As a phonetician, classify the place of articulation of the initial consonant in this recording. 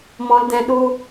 labial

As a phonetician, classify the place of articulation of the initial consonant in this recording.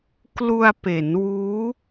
velar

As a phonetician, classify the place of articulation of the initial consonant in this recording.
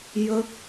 palatal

